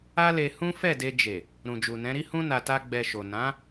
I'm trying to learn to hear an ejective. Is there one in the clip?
no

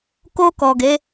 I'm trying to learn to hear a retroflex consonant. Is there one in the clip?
no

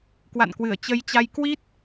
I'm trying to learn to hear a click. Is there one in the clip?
no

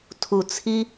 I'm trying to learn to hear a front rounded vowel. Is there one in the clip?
no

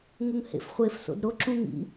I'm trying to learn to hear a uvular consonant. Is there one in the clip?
yes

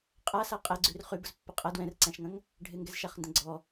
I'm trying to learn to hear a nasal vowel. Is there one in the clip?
yes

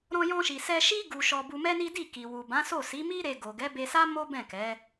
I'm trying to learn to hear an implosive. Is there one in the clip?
no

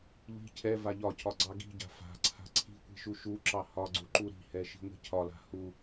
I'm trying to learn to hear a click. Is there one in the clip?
yes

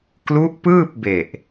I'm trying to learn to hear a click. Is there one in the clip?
no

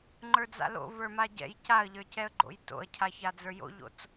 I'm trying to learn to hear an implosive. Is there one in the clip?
no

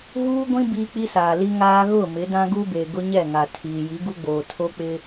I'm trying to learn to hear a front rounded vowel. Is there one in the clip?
no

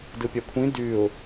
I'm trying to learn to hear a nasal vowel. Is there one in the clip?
yes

